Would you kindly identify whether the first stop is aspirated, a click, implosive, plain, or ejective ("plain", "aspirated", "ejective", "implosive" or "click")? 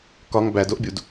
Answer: plain